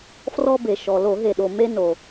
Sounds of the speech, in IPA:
frɔ˧be˩ʃɔ˩ lo˧˩˧ɦe˩ɗo˩ me˧no˩

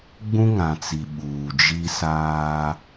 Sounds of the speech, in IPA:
ɡ͡bũ˦ŋã˨t͡si˨ ɓuː˨d͡ʒi˦saː˦

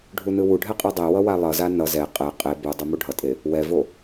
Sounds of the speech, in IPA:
ɖʱunɯwuɖʱɛ qʼidˤewʌ walˠʌza nʌ zɛ qʼɛ qʼe bu dˤɯmuɖʱʌtʼe | wɛvo

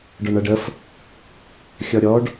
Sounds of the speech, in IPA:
ɖɔɳʌɖəf | xʲɔɾʲɔɖ

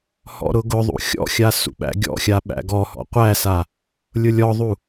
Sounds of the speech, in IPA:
hɔ̰ɾʊɡʊðˤṵ xʲɔ̰xʲa sṵɓæ̰ɡʲɔ̰xʲa ɓæ̰ɡɔhɔ̰ qʷæsa | lʲʊlʲɔðˤu

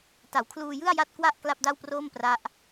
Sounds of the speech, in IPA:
ta˩˦wkʰluː˧ jɯ˥˩a̯ ja˥˩t̚kwa˥˩ʔ kla˥˩p̚da˥˩wproː˥˩m pra˦˥ʔ

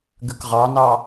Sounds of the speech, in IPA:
ɡʉkʁɑnɑ

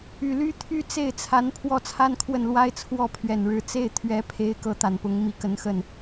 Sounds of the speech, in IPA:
y˨˩ly˥t̪ʰy˥ t͡se˥˩ɪ̯t͡sʰa˧˥n pʰwɔ˥˩t͡sʰa˥nkʰwə˥˩nlwa˥ɪ̯ t͡sʰwɔ˥˩pʰɥɛ˨˩nɻɻ̩˧˥ t͡se˥˩ɪ̯ t̪ʰɥɛ˧˥pʰe˧˥ɪ̯ kɤ˧˥t̪a˨˩npʊ˧˥ŋ mi˧˥kə˧˥nxə˥˩n

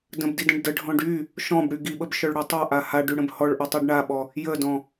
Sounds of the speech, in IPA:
də̃bdidə̃ɖ dəɖʱɔ̃ɖ y | ʃɔ̃bɽy ɡiɓəbʃœɭɽy tˤaʔa haɖyɽə̃b hɔɭʔɔtˤyɖ ɳaɓɔ | jədɔ̃

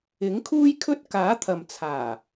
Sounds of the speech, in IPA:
ɪ˨˥ŋkʰuː˥jkʰɵ˥t̚ kaː˨˥t̪ʰɐ˨mt͡sʰaː˨˩

